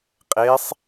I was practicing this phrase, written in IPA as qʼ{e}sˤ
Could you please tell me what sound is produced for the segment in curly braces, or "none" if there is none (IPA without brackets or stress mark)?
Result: e